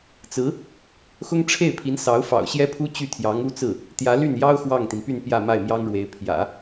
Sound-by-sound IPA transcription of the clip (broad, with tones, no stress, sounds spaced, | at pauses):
t͡s ɹ̩˧˥ | x ʊ˥ ŋ ʈ͡ʂʰ e˥˩ ɪ̯ pʰ i˧˥ n s ɑ˧˥ ʊ̯ f ɑ̰˨˩ ʊ̯ ɕ j ɛ˥ pʰ u˥ t͡ɕ y˥˩ t̪ʰ j ɑ˧˥ ŋ u˥ t͡s ɹ̩˥˩ | t̪ j ä˧˥ l y˥˩ n j ɑ˥ ʊ̯ x w ɑ˥˩ ŋ t̪ i˩ n p y˥˧ n p j ä˥˧ m a˥˩ ɪ̯ m j ɑ˥ ŋ ɻ w e˧˥ ɪ̯ pʰ j ä̰˨˩˦